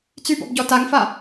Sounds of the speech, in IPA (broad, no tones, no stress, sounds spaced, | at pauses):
t͡s y b ɔ̰ b ɟ ɔ t a ŋ f a